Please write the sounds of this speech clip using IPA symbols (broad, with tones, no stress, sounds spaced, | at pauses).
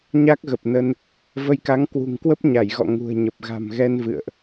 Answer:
ɲ a˦˥ k̚ ɣ ə˨˩ p̚ n ə˧ n | v ə˧ j k a˨˦ ŋ k w ṳ˨˩ ŋ k w ə˦˥ p̚ ɲ a˧˩ j ɣ ɔ̰˧˨ ŋ ṳ˨˩ ə̯ ɲ ə˨˩ p̚ ɣ a̤˨˩ m ɣ ɛ˧ n v ɨ̰˧˨ ə̯ ʔ